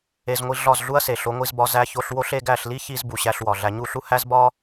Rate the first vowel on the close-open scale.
mid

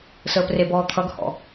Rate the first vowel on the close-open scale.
mid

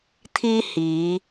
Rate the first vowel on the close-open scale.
close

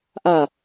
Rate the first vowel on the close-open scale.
open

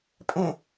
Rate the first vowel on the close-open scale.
mid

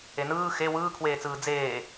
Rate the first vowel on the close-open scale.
mid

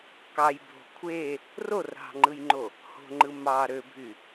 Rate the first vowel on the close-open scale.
open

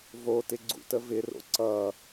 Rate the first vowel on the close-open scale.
mid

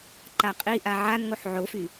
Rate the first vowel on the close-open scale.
open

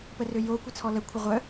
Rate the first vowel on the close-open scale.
mid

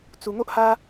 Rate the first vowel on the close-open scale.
close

